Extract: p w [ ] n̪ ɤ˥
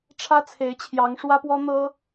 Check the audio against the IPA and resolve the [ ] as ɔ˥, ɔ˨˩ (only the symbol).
ɔ˥